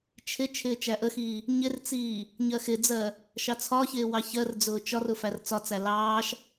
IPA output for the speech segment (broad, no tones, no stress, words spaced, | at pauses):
t͡ʃʰɪ t͡ʃʰɪːt͡ʃæʔəxiː | ɲɪrt͡siː | ɲɜxɪd͡zɜ | ʃɑt͡sʰɒçɪː wɑçɜrd͡zʊː t͡ʃɒrʊ fært͡sɒt͡sæ lɑːʃ